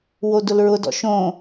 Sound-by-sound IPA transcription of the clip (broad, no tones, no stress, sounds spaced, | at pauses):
w o d ʊ l ɹ ʊ d ɔ̰ ʃ õ